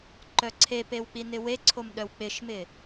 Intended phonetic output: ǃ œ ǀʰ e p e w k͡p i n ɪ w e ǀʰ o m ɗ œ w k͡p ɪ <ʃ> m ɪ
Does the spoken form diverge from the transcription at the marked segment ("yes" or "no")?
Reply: no